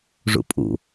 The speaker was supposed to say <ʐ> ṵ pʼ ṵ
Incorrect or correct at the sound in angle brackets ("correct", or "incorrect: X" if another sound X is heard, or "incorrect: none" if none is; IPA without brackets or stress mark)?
correct